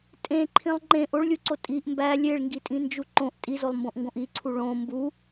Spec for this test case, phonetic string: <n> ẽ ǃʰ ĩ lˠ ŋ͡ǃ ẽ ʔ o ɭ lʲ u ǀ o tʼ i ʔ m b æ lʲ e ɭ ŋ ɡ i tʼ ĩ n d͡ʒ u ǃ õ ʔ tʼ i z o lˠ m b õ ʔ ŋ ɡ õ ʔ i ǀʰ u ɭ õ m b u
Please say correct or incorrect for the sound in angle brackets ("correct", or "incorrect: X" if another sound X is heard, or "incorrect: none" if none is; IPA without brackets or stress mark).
incorrect: tʼ